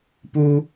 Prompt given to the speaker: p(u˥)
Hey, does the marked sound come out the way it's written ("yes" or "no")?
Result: yes